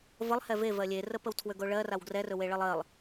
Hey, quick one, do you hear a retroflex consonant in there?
yes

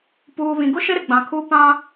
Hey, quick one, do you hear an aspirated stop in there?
yes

